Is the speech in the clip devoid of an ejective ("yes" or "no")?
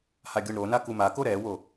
yes